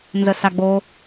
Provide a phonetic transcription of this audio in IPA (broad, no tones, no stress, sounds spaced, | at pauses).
n z ə s a ɡ͡b o